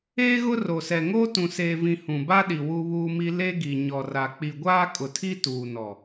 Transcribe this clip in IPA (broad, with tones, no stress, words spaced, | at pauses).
eː˦ɣʊ˦ro˨sɛ˨ ŋoː˦tũ˨seː˨vĩ˨ hũ˨ba˦ɗi˨ wu˦βuː˦mi˦ le˦ɡi˨ ɲɔ˨ra˨ k͡pi˨ɡʷaː˦kʼʊ˨tʰi˦ tuː˨nɔ˨